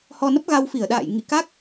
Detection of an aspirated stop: absent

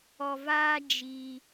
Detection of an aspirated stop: absent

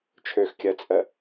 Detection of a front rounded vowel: present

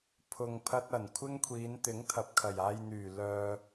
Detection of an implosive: absent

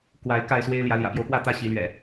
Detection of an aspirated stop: absent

